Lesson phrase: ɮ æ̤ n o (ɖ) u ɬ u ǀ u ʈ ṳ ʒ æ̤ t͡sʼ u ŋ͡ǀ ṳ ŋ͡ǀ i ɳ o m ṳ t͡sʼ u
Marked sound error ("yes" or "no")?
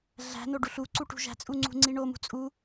no